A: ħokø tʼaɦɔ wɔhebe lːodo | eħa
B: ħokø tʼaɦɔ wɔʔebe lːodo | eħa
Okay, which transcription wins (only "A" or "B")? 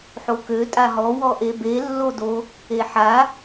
B